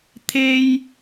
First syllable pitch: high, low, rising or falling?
high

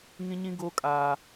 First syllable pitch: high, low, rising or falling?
high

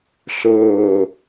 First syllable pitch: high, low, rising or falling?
falling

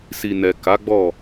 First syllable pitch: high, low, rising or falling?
low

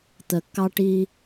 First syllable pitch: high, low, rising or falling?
low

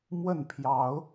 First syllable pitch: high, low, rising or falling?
falling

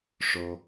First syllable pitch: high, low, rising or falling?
low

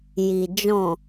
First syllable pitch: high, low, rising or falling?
low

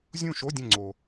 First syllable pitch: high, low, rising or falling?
falling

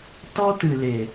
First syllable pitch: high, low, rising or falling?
high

